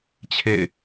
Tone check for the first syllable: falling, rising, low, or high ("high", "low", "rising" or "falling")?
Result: falling